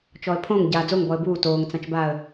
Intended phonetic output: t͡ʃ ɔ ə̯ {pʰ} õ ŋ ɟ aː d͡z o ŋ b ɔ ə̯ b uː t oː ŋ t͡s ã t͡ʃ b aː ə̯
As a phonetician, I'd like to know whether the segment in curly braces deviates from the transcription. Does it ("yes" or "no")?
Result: no